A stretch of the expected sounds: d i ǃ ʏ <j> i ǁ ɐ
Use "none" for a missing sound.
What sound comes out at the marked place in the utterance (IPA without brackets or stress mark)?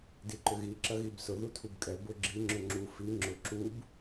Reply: ɣ